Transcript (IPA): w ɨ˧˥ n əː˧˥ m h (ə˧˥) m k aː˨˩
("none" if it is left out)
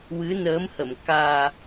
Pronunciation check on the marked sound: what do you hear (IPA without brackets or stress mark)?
ə˨˩˨